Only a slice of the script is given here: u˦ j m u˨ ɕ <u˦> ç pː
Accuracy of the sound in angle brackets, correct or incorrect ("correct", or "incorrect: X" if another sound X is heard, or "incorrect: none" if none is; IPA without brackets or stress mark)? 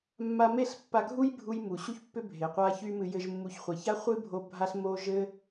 correct